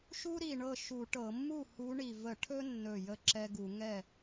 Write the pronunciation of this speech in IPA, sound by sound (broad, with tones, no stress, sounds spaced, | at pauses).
ʃ u˦ ɾ i˨˩ ɳ ɤ˥˩ ʃ u˧˩˧ ʈ ɤ˧˩˧ mː u˥˩ h u˨˦ ɳ i˨˩ v ə˧˩˧ ʈʰ ɵ˦ nː ɵ˨˩ j ə˦ ǁ ɛ˦ ɡ u˧˩˧ ŋ ɛ˥˩